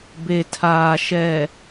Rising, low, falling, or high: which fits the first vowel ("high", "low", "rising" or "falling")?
low